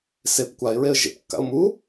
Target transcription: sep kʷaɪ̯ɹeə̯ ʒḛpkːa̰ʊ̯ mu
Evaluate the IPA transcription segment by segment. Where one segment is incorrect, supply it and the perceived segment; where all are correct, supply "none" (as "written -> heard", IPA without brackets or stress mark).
none